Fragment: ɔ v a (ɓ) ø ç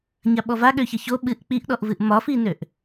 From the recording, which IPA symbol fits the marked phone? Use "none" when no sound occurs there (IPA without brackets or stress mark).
ɠ